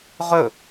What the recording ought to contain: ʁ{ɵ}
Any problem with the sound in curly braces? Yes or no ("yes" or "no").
no